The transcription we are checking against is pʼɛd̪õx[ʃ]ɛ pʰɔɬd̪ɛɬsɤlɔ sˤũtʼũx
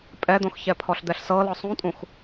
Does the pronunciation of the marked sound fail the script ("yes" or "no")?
yes